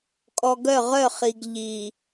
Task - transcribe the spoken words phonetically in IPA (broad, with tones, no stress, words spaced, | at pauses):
kʼɔ˨ɡœ˦˨ʁœ˦˨ χi˨ɡ ʎi˨